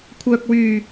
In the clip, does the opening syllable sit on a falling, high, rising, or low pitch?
low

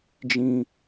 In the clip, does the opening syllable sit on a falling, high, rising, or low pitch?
high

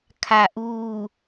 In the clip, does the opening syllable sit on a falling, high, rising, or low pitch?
low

